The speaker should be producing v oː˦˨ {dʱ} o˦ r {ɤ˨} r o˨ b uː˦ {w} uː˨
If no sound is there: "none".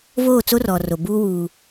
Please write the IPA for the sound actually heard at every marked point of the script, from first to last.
t͡s, ɔ˨, w

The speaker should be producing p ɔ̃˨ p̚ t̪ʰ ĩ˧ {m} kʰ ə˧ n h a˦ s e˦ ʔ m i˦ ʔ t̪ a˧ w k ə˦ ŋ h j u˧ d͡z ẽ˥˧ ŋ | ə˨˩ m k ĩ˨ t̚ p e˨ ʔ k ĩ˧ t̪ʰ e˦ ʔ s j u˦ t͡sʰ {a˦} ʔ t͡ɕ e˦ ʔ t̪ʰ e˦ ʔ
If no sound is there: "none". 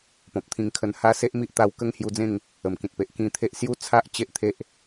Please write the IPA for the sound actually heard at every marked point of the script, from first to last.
ŋ, a˦

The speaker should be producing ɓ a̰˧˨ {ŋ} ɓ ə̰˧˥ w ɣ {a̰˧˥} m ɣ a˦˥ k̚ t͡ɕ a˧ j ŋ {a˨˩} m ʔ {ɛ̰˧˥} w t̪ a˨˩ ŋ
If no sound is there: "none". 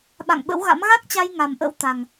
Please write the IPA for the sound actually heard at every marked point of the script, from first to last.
ŋ, a̰˧˥, a˨˩, ə̰˧˥

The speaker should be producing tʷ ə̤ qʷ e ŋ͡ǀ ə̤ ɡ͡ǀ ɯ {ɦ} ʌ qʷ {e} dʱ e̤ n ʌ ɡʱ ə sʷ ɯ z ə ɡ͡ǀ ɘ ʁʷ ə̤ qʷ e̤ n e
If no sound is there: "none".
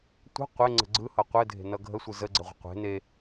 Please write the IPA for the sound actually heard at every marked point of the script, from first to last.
h, ɘ

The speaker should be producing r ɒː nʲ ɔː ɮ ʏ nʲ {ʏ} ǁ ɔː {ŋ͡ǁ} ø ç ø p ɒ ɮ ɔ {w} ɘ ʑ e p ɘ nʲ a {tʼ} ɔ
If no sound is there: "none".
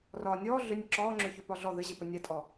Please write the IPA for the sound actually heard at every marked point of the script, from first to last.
ə, ŋ͡ǁ, ð, tʼ

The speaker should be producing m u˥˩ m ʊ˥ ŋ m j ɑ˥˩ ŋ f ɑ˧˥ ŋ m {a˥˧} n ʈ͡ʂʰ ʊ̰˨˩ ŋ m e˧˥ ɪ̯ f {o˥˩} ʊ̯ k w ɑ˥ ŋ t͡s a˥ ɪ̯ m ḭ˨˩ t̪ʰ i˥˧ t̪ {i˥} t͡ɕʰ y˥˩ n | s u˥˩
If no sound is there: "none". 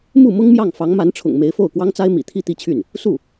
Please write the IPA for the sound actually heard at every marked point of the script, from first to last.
a˧˥, o˥˩, i˥˧

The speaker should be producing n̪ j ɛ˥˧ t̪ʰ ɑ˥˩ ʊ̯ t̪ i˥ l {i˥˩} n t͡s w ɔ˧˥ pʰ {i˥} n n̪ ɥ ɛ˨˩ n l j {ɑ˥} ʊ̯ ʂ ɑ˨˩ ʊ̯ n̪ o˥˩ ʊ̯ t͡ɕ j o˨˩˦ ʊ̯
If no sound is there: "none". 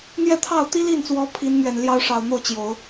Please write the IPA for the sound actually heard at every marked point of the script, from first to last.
i˥˩, i˧˥, ɑ˥

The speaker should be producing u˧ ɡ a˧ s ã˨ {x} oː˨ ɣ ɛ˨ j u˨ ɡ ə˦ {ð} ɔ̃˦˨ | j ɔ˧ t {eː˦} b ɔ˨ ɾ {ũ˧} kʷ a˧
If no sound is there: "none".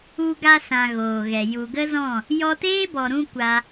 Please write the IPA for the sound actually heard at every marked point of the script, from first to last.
ɣ, z, eː˦, ũ˧

